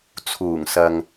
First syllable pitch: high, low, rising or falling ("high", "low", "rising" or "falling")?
low